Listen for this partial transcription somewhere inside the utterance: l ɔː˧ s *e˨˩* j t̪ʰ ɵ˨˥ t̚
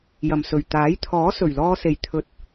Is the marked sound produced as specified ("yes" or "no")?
yes